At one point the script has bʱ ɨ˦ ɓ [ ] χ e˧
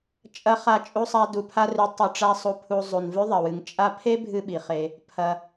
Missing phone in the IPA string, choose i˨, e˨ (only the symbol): i˨